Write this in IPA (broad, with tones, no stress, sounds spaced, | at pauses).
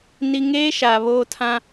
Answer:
n i˦ ŋ eː˦ ʃ a˨ β oː˦ tʰ ã˦